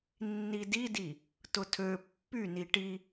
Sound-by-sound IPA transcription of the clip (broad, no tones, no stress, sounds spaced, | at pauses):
nː i d i d i | t ʊ tʰ ø pː y n i ʈ i